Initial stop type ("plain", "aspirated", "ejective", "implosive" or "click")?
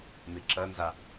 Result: click